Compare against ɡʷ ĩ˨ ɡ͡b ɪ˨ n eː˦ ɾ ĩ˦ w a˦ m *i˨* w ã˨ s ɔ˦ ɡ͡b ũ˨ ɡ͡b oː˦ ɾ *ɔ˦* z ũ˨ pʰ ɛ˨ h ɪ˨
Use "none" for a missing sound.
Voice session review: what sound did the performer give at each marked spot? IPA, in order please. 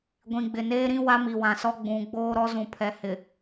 i˨, ɔ˦

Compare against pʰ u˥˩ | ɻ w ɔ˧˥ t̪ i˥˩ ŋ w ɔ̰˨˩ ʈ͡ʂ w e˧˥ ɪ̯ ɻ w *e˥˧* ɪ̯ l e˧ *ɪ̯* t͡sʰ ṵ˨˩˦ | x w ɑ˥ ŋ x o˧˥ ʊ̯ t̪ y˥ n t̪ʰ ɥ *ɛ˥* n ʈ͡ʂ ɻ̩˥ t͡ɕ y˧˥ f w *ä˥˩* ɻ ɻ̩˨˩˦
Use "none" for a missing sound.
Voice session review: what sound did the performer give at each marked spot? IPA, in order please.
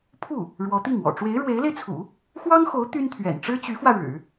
e˧˥, ɪ̯, ɛ̰˨˩, ä˧

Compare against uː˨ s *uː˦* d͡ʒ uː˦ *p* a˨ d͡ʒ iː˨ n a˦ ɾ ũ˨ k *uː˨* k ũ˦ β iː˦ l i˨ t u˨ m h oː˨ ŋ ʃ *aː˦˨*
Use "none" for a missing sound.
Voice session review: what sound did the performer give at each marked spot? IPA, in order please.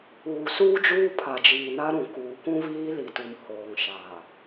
uː˦, pʰ, uː˨, aː˨

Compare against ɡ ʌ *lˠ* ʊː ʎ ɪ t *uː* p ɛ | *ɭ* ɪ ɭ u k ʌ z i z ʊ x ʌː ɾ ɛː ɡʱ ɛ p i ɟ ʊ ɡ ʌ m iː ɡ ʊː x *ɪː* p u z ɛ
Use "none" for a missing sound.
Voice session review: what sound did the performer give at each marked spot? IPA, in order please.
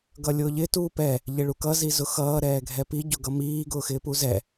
lʲ, uː, ʎ, ɪː

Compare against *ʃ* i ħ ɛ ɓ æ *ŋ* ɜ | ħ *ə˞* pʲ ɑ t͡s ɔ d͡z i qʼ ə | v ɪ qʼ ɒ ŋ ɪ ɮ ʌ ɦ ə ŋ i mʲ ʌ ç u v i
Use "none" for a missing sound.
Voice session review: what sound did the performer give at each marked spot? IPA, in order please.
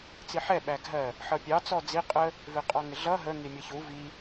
t͡s, ɡʱ, ʌ

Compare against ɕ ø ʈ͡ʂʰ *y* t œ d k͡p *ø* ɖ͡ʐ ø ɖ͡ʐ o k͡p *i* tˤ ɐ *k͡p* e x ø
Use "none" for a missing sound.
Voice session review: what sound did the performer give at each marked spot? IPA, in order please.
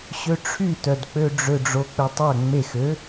y, ø, ɪ, ŋ͡m

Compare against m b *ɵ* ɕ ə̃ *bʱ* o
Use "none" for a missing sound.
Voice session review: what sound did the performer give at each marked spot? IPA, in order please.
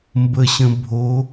ə, bʱ

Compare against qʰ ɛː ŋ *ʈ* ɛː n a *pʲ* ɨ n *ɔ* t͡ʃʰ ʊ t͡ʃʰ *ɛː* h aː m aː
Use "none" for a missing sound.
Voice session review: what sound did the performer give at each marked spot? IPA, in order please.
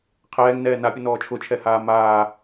n, pʲ, ɔː, ɛ

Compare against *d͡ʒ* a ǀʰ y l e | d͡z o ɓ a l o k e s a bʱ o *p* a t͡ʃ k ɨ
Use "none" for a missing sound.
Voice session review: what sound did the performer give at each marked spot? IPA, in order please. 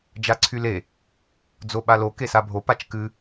d͡ʒ, p

